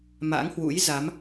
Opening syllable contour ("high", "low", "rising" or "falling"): rising